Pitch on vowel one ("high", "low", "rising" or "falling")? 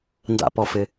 high